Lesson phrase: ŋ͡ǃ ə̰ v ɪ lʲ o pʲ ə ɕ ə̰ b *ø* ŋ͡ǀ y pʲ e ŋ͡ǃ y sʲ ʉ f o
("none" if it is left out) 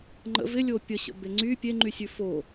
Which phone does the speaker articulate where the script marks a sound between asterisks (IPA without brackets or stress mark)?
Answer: e